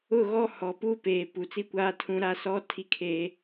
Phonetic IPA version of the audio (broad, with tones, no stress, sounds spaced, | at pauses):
ʊ˦˨ ɣ ɔ˦ h ɔ˨ p uː˦ p eː˨ p u˨ t͡s i˦ kʷ aː˦ tʰ ũ˦ ɾ a˦ s ɔ˦ tʰ i˦ kʰ eː˦